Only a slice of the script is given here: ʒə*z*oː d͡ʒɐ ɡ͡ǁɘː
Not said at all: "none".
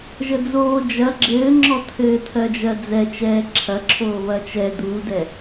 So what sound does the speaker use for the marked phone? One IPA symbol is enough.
d͡z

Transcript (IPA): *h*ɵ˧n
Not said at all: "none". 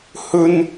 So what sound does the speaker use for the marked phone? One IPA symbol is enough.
h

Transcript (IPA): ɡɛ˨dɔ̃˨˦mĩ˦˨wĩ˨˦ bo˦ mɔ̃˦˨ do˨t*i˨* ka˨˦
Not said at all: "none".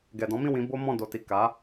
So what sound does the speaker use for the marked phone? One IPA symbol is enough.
i˨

